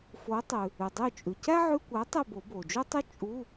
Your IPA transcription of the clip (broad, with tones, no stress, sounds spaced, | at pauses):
f o˨˥ tˤ ʉ˩ | ʉ˩ dˤ y˦˨ t͡ʃʼ ʉ˩ c æ˥ ʕ ʉ˧˥˧ kʷ æ˨˥ tˤ ʉ˦˨ b o˨˩˦ b o˩ d͡ʒ u˥ tˤ ʉ˥ t͡ʃʼ u˧˥˧